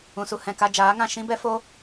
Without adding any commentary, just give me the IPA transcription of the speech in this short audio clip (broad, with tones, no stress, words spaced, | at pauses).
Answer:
ũ˨su˧ hɛ̃˨ka˧d͡ʒaː˨˦ŋã˦˨ ʃĩ˦bɛ˦fo˦